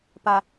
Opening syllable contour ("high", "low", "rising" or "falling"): low